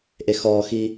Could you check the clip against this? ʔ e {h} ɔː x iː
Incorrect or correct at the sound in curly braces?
incorrect: x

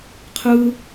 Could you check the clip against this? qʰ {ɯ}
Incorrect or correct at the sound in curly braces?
correct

